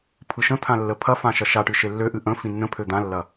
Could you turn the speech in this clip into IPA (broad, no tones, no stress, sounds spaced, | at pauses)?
pʰ ɯ ʃ ə̃ t̪ʰ ã lː ə pʰ ɐ f ã ʃ ɐ ʃ a ʈ ɨ ʃ e lː ø ʔ ɨ ʔ ə̃ f ĩ nː ə̃ pʰ ø d̪ ã lː ɐ